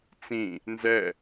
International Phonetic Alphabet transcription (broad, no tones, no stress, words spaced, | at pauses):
t͡sĩ | nzɛ